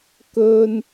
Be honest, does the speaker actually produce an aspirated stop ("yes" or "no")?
no